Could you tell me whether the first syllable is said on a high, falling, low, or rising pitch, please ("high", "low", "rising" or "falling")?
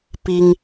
high